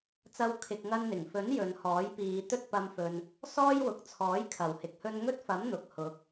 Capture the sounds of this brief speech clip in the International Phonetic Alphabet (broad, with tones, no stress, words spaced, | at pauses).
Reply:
t͡sɐ˥w kʰɪ˧k̚ŋɐ˥nn̪ɪ˨˩ŋ fɵ˨˥n jɵ˨˧nhɔː˨˥jpiː˨˧ t̪ɵ˥t̚pɐ˧mfɵ˨n | sɔː˥jwʊ˨k̚t͡sʰɔː˨˥j kʰɐ˨˩whɪ˨˥k̚hɵ˥n ŋɵ˥t̚fɐ˨˥m n̪ʊ˨k̚ hʊ˨˥k̚